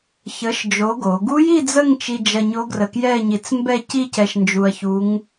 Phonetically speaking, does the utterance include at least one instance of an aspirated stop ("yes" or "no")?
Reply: no